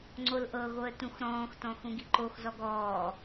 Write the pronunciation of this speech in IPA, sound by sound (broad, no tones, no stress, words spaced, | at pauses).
ŋ͡ǀolʔɤɣoə̯ tũxɾɔ̃ːxtɔ̃ xũɡiǃoxzɔɡ ɔː